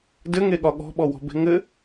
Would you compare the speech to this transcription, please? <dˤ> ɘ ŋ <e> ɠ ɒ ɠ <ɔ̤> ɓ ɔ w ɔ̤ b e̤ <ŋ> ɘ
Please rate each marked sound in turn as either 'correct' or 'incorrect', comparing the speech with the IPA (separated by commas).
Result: incorrect, correct, correct, correct